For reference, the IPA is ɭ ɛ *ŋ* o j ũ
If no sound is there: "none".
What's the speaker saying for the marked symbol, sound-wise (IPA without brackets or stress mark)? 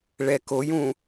k